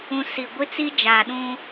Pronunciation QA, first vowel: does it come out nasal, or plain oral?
nasal